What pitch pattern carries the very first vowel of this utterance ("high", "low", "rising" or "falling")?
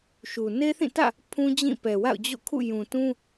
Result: low